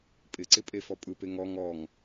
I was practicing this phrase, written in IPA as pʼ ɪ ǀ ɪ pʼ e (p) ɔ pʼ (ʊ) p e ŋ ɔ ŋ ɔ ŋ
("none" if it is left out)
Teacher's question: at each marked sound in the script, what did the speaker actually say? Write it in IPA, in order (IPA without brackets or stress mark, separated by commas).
f, ɯ